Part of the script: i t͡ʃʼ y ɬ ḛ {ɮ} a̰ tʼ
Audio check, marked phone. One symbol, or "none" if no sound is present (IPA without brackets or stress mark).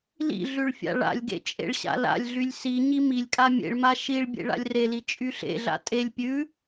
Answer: ɮ